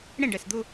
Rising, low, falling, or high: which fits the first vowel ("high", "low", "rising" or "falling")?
falling